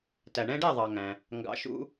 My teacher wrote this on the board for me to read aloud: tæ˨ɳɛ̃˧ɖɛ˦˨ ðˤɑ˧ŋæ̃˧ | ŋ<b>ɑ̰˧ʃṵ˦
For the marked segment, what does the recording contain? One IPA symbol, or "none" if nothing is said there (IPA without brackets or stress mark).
ɡ